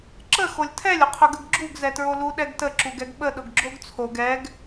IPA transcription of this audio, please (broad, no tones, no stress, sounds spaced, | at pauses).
ǁ ə x o lʲ tʰ ɛ lʲ ʊ qʰ ʊ ɡ ə ɡ ɡ͡ǁ u ɡ z ɛ t ɹ o l u ɗ ɛ ɡ t ə ǁ u ɡ ɛ ɡ ɓ ə ɗ ʊ ɡ ɡ͡ǁ o ɡ t͡sʰ o ɡ ɛ ɡ